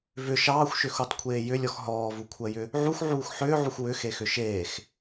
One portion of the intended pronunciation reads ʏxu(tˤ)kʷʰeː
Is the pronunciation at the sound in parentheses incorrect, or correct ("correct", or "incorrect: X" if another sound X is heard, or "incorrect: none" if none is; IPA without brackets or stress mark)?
correct